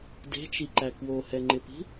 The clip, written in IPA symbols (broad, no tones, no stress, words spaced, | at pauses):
de̤t͡ʃiǃæ kwohɛŋ͡ǃɪpi̤